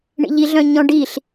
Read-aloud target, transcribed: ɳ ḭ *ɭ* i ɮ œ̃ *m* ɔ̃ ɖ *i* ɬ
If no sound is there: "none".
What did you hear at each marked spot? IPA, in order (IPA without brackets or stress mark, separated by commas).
ʎ, ɲ, i